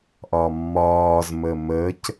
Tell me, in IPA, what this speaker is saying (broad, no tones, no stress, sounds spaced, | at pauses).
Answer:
ʔ ɒ mː ɒː z m ə m ə c